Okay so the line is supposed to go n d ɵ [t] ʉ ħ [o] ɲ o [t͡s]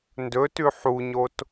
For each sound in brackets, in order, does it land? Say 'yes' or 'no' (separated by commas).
yes, no, no